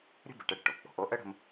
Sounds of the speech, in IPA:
ɾʲə̤˥bə˩ʈə˧ ɽə̤˩ʈo˩ k͡po̤˩ʔo˧ ʔə˥ ɽə̤˧m

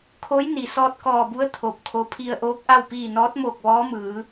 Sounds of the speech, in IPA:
kʰo˧˥jni˩ sɔː˧t̚kɔː˧˩bu˧˥ə̯ t̪ʰo˧˩p̚kʰo˧˥ pʰi˧ə̯ʔoː˧˥k̚ʔa˥˨w piː˧˩ nɔː˧˥t̚moː˧˩k̚ ʋɔː˧˥mɯː˩˧

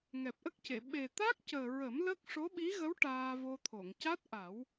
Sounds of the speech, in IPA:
ŋɛ˨˩p̚ʔə˦˥k̚ce˨˩˨ ɓe˨˩t̪a˦˥k̚cəː˨˩ɹə˨˩˦m lə˦˥k̚ ʂo˧˥ɓi˧˥ɣə˧˥w ʈaː˧vo˧t̪ʰo˨˩˨ŋ ca˦˥t̚ ʔa˨˩˦w

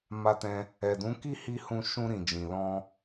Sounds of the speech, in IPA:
ma˧tɛ̃˧ | ɛ˨dũ˨˦ki˦˨hi˧ hũ˧ ʃũ˧ɾĩ˨d͡ʒĩ˨ lɔ̃˧

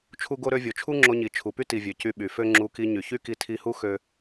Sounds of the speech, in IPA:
t͡ʃʰu˦ɡo˦ ɾø˧vʲo˨t͡ʃʰu˦ ŋ͡ǁo˧ɲi˨ t͡ʃʰu˨py˦ti˨vʲø˨ cy˧ɓy˨fø˦ ŋ͡ǁu˧ki˧ɲy˨ çy˦ki˧ tʰi˧hu˦ xø˦

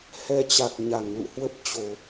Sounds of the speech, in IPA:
hɛ˧t͡ɕa˨˩k̚ ɲa˧˩ŋlṵ˧˨hwə˦˥p̚ t͡ɕo˧˩˨

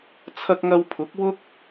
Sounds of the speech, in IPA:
t͡sʰɐ˧k̚ŋɐ˧w pʰʊ˨˥k̚wʊ˥k̚

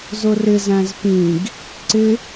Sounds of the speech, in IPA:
zʊrɪz æ̃zpĩɡ | ǀɪ

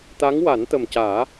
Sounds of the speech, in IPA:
t̪a˧˥ŋwa˨˩˦nt̪ə˨˩mcaː˨˩˦

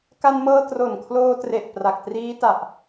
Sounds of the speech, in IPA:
ka˧nmɤː˧ tro˨˩nkʰloː˧tre˨˩ʔ pra˨˩k̚triː˦˥ta˨˩ʔ

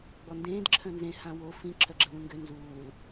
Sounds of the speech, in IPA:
ɡ͡bɔndẽːd ǁʰœ̃nzẽ hãwo fĩ ǁʰœɡ͡ǁəlũŋɡø nzuːl

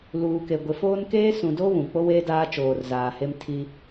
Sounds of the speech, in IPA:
luː˨ke˨ ɡʷe˨foː˦n keː˦sũ˨do˦ βũ˨ k͡po˦weː˦ daː˦t͡ʃoː˨rzaː˨he˦m tʰi˦

